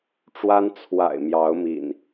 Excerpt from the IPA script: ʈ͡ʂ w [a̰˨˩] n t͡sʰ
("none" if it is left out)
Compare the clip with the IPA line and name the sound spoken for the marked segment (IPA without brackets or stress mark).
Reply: a˦